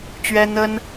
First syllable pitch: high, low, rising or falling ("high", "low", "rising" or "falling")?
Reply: high